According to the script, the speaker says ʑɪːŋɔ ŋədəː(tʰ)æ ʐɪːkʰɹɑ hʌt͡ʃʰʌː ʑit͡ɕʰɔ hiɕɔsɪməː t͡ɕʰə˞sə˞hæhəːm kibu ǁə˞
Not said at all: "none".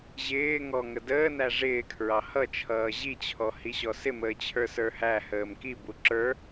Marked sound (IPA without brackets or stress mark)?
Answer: n